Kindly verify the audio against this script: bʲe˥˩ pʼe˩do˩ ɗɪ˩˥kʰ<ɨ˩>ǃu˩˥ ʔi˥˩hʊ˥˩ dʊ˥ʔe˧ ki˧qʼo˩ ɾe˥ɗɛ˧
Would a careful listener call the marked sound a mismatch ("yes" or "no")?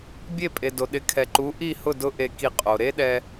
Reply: yes